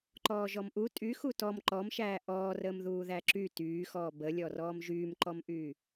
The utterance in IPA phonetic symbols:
ǃ ɔː ʒ ɔ m ʔ u tʼ y x u t ɔ m ǃ ɔ m ʃ æː ʔ ɔː r əː m ð uː ð æ ǁ y t yː x ɔː b ə lʲ ɔ r ɔː m ʒ yː m ǃ ɔ m ʔ yː

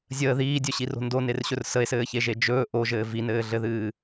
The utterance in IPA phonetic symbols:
zʲ əː ð iː dʲ ɵ ɕ i r o̤ n d o n e r ɕ ɵ r s ə e̯ s ɘː ç e ʒ e d͡ʒ ɵː ʔ o ʒ ɘː v i n ɘː ɮ ɘ ð ɨː

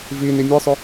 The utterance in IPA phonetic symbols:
v i n i mʲ ɯ sˤ ʊ

